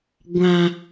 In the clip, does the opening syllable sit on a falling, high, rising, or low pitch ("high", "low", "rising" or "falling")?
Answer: low